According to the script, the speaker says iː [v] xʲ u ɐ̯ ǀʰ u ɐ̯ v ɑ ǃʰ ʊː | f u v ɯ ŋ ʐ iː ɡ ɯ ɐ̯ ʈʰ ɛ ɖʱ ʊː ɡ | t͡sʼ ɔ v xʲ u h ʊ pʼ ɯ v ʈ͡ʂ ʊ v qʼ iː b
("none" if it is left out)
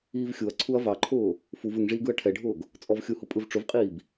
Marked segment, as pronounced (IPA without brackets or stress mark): v